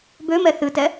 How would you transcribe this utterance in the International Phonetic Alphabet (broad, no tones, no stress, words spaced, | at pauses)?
bømɛ θɨtɛ